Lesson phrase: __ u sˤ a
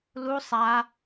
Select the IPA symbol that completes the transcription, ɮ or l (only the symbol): l